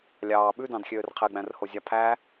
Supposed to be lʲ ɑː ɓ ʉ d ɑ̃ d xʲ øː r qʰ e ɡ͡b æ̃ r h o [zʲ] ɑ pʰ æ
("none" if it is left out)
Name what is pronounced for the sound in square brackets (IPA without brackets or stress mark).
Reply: zʲ